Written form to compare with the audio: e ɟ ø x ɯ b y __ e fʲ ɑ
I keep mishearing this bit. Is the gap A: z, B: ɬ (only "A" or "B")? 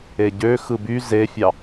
A